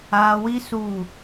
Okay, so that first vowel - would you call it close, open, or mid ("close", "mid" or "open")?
open